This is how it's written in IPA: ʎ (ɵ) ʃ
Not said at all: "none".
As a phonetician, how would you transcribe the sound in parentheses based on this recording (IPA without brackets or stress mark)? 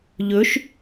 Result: ɵ